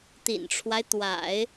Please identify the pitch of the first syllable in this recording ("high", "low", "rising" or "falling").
low